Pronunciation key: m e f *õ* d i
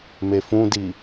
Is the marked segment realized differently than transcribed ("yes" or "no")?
yes